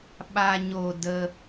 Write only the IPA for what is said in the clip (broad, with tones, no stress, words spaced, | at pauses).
ɓa˨ɲo˨ də˧